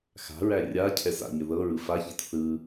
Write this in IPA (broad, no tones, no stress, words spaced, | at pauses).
xa̤ɹæ rʲa cʰɛsa̰ɲə ðɤɹɯ façit θɯ